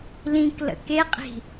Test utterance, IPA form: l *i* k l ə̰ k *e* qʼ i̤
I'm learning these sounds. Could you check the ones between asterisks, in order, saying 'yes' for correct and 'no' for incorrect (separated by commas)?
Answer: no, yes